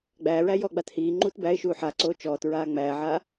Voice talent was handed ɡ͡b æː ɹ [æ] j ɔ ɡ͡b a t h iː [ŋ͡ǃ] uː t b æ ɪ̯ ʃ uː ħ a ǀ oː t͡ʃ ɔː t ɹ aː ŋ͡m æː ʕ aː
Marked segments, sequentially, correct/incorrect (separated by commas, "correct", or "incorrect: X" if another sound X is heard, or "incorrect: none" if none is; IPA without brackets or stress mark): correct, correct